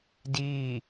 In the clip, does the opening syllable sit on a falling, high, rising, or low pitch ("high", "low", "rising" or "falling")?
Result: falling